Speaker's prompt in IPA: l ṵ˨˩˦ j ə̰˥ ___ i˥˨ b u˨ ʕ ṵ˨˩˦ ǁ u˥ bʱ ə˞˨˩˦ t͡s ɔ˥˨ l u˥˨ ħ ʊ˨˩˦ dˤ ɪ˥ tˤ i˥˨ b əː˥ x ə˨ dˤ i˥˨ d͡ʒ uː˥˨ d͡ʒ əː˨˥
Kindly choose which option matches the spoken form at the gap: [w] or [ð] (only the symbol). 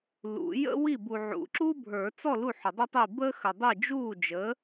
w